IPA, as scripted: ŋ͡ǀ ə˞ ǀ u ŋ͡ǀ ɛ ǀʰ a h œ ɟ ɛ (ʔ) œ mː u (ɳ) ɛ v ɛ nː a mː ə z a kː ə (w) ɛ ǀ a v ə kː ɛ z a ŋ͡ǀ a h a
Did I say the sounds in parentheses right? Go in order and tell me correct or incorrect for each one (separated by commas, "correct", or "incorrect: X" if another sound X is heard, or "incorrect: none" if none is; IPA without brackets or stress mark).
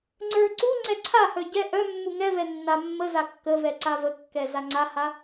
correct, incorrect: ŋ, incorrect: v